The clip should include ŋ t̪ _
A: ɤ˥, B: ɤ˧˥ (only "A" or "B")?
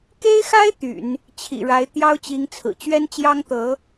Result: B